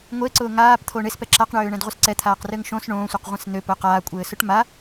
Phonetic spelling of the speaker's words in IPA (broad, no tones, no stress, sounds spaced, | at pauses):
ŋʷ e ǀ ʊː ŋ aː p t̪ʰ o ɳ e s p ɛ ǁ a q ɳ øː ɳ ɛ̃ d ʁʷ ɘ s ǀ ɛ t̪ʰ aː q r ɘː ŋ ʃ õ s ɳ õː sʷ e q ʁʷ ɛ̃ s n̪ ø p ʊː q aː kʷʼ ɘː s ʊ ʈ m a